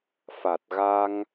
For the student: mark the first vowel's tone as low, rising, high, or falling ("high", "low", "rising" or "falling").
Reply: low